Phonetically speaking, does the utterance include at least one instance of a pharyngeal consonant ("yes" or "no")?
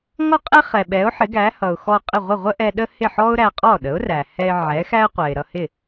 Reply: yes